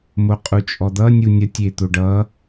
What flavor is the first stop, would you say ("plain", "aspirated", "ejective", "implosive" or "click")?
ejective